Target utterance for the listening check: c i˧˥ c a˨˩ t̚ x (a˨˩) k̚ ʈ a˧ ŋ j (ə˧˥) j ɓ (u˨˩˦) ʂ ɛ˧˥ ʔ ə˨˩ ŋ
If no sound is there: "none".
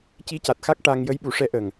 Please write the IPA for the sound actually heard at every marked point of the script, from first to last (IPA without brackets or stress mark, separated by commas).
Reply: a˦˥, ə˧˥, u˨˩˦